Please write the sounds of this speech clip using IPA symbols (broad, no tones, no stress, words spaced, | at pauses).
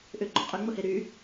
ʔʏɡ͡ǃo qʼʏŋ͡mʊhe ɾy